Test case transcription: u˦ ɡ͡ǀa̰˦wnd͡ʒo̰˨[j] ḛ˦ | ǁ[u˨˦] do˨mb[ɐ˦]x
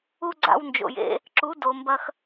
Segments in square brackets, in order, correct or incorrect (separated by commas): correct, correct, correct